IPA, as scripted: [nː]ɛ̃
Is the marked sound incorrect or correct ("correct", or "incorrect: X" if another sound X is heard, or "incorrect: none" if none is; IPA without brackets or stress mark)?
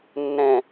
correct